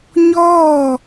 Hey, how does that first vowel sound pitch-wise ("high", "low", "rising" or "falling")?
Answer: falling